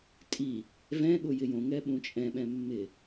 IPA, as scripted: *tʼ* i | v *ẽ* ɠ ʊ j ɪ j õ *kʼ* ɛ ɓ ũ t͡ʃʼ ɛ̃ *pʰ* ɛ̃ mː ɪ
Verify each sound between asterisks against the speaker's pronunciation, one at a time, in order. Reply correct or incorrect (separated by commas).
correct, incorrect, incorrect, incorrect